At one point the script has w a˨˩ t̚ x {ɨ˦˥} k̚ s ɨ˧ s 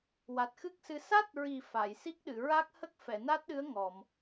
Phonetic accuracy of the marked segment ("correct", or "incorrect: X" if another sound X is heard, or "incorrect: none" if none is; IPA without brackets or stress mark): correct